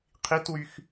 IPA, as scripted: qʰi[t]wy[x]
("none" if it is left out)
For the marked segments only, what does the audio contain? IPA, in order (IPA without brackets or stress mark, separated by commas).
t, x